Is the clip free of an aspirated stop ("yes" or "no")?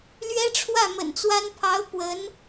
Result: no